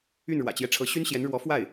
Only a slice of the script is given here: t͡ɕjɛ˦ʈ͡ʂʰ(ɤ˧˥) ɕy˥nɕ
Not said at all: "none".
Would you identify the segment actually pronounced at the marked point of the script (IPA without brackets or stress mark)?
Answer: ɤ˧˥